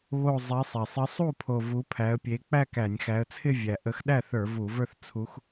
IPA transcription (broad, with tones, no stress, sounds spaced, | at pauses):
β o˨˩ zˤ e˨˦ sˤ e˨˩ sˤ ɪ˨˦ sˤ u˥˩ pʰ o˨˩ v u˨˦ pʰ æ˨˦ ə̯ pʲ e˨˦ k͡p æ˥˧ k æ˧˩˧ nʲ x æ˨˦ ə̯ t͡sʰ ɪ˥˧ vʲ æ˨˩ ʔ ə˨˦ x ɗ æ˥˩ θ ə˞˧˩˧ v u˧˩˧ v ə˞˥˧ θ t͡sʰ u˨˦ x